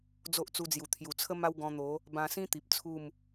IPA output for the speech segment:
d͡z o˦ ʔ t͡s u˧ d͡z j u˨˩ t̪ʰ j u˨˩ t͡sʰ ə˦ m a˦ w ɡ ɔ̃˧ n̪ o˨˦ | b ã˧ s ĩ˦ t̪ i˨ p̚ t͡sʰ u˥˧ m

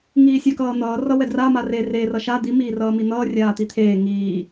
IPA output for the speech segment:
ŋ iː sʲ a k ʌː n̪ ʌː r ʌ w ɛ d r a m a r e r e r ʌ ʃ a d̪ i m iː r ʌː m i n̪ ʌː rʲ aː t̪ i t̪ʰ eː ŋ iː

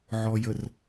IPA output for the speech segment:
ʕ ɔ˨ j ə˨ r

